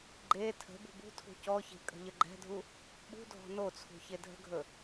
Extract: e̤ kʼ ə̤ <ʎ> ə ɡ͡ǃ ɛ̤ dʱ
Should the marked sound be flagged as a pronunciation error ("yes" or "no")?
no